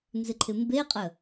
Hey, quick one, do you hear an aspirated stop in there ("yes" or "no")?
yes